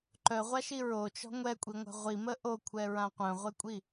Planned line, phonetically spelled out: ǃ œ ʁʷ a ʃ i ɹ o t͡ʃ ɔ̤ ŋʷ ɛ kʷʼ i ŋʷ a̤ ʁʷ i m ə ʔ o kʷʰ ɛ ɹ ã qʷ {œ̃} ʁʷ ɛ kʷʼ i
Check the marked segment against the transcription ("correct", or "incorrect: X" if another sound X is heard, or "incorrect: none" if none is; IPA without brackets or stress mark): correct